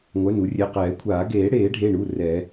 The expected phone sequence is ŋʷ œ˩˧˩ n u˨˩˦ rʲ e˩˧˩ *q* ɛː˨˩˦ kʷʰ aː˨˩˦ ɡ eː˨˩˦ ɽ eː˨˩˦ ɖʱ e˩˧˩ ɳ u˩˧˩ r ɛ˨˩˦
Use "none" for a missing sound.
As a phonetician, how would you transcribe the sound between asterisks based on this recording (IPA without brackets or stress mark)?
q